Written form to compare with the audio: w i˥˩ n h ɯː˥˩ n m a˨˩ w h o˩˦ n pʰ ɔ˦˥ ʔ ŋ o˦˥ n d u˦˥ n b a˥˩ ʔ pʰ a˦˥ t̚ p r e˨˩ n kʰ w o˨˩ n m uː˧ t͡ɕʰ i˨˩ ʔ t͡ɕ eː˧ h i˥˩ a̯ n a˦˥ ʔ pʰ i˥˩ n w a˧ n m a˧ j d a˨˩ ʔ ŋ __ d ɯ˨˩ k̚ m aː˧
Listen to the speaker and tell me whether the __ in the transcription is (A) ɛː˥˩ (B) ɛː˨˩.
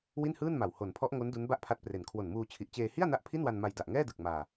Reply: A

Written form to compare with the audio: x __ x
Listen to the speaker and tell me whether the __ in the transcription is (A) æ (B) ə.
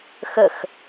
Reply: B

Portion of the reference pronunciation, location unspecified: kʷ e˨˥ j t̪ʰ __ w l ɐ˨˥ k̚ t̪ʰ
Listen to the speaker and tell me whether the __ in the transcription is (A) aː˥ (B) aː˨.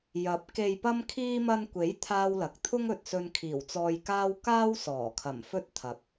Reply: A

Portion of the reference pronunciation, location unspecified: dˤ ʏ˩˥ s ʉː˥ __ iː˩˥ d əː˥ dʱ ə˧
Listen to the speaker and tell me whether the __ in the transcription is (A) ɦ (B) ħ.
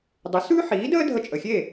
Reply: B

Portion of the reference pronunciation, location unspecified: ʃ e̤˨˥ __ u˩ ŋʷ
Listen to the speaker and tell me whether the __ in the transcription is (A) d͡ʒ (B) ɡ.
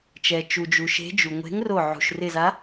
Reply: A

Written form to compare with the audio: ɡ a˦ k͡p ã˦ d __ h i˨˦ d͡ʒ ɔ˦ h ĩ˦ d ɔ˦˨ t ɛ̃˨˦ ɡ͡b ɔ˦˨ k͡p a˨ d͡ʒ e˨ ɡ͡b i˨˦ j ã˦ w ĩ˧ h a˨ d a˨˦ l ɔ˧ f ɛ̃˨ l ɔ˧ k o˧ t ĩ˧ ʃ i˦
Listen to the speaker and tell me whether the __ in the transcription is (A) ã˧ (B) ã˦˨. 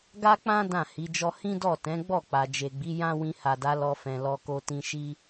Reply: B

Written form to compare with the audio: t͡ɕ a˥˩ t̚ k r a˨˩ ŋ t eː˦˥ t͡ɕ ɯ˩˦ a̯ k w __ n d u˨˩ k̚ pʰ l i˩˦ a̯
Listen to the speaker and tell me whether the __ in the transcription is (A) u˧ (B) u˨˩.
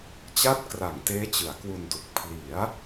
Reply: A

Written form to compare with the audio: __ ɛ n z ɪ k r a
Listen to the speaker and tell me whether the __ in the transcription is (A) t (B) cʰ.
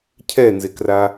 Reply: B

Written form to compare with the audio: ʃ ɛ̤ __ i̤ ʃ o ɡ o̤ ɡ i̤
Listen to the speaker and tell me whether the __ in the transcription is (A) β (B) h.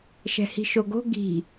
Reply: B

